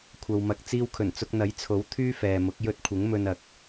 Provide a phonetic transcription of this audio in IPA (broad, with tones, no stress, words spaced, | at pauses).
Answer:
kʷʰɐ˨wmɐ˨k̚ t͡siː˧wkʰɵ˨˩nt͡sʊ˧k̚ n̪ɐ˨˥jt͡sʰo˨˥w t̪ʰyː˥fɛː˨mʊ˨˥k̚ jɵ˧t̚kʷʰɪ˨˥ŋ mɵ˧nɐ˨˥k̚